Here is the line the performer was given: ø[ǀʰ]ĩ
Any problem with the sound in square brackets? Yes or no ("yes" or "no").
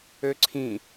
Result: no